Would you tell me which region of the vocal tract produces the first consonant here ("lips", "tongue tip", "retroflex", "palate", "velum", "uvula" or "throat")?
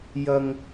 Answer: palate